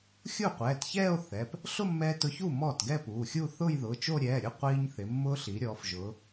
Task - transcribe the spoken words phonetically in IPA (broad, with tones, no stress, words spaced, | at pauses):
xʲu˥˩qʷɛː˩˧˩tçɛː˥˧o̯ θɛ˩˧˩p | ɬʊ˥˧mːɛː˧ tʊ˧çu˥˩ mɔː˥˩tɡɛ˥˧puː˩˧˩xʲuː˥˧ θʊː˥˧jðʊː˩˧˩t͡ʃo˥˧ ɾʲɛː˩˧˩ɾʲʊ˥˩ qʷiː˧ɲθɪ˩˧ mːʊː˧ɬi˩˧ ɾʲɔː˩˧fʒʊː˩˧